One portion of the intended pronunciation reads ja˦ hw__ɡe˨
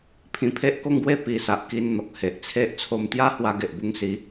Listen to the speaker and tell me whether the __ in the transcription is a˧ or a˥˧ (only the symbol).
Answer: a˧